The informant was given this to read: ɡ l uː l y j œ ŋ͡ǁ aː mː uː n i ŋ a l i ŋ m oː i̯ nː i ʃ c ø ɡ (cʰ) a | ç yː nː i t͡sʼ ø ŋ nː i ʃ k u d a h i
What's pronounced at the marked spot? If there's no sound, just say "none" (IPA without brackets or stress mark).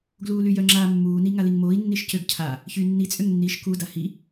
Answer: cʰ